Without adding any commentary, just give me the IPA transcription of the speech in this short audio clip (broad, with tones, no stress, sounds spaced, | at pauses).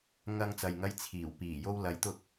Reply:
ŋ ɐ˧ ŋ t͡s ɐ˨ j ŋ ɐ˧ j t͡sʰ iː˨˩ w p iː˨˩ j o˧ w l ɐ˨˥ j t̪ ʊ˧ k̚